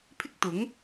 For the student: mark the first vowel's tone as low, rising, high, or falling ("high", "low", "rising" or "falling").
high